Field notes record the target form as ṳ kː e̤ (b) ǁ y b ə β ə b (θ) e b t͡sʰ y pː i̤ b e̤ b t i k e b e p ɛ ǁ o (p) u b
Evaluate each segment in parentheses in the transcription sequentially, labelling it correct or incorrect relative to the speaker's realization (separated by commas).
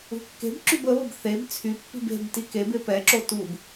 correct, correct, incorrect